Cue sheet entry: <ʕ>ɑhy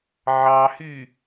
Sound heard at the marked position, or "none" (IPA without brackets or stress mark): ʕ